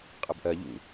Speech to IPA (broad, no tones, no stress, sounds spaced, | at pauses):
qʼ ɐ b ʔ ɜ ʎ ṵ